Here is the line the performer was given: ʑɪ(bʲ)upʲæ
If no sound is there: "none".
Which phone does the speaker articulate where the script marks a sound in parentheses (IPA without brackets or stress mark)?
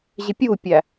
pʲ